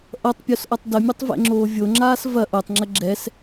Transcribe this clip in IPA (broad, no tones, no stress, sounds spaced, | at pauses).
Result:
ʔ ʌ tˤ pʲ o s ʔ ʌ tˤ d ə mʲ ʌ tˤ v ɛ̰ ŋ͡ǁ oː vʲ o ŋ͡ǁ aː s v ɐ ʔ o tˤ ŋ͡ǁ ə ɡ͡ǁ ɛ s